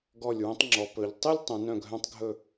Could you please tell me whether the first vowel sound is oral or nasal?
oral